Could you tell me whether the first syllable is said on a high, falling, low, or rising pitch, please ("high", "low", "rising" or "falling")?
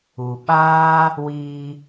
low